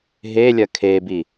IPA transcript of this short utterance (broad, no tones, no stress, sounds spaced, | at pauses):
ɦ e lʲ ɐ kʰ e b i